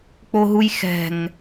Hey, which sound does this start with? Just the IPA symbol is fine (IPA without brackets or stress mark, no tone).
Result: k͡p